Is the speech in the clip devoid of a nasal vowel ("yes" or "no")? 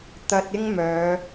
yes